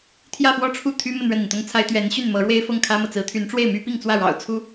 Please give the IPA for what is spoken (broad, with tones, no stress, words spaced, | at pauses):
t̪ʰjä˥˧fwɔ˥˧ʈ͡ʂʰu˥˩ t̪ʰy˥mə˥˧n ɻə˥˩ni˩nt̪ʊ˥ŋt͡sʰa˥ɪ̯ t̪ɥɛ˧˥nɕy˥˩n mɤ˧˥ɻwe˥ɪ̯ fɤ˥˩ŋkʰä˥mɤ˨ t͡sɹ̩˧˥t̪ʰy˧˥n ʈ͡ʂwe˥˩ɪ̯my˥ pi˥˧ŋt͡swä˥˩ɻɑ̰˨˩ʊ̯ t͡sʰu˥